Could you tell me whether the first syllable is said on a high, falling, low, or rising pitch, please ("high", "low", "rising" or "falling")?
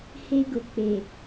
high